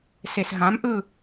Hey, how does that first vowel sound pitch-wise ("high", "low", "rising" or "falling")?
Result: low